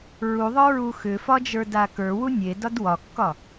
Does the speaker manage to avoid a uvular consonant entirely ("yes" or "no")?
yes